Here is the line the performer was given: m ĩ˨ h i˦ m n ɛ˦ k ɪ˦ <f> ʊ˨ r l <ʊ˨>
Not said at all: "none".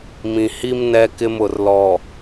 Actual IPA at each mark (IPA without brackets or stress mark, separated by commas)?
m, ɔ˨